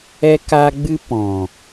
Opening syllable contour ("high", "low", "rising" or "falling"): high